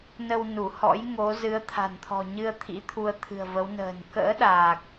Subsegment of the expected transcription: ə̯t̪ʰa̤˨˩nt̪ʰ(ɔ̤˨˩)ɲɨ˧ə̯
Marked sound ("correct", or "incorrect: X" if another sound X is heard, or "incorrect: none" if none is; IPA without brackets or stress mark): correct